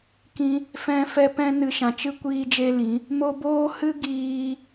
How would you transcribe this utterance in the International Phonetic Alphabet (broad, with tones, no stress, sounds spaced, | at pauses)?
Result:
k ĩ˦ | f ɛ̃˦ f ɛ˦ p ɛ̃˦ n ɨ˧ ʃ ã˨ t͡ʃ ɨ˦ kʷ iː˧ d͡ʒ e˧ l ĩ˨˦ | m o˧ b oː˦ h ɨ˦ ɡ iː˦